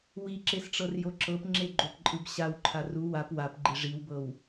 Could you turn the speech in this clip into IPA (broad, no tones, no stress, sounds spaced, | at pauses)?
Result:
w i ǁ e s ʈ͡ʂ ɤ r j o ǁ ɤ p ŋ͡ǁ e ɡ͡ǃ o p ǃʼ ɯ b ɕ a w ǃʰ a r u w a p w a p ɡ͡ǃ i ʐ i w b ɤ w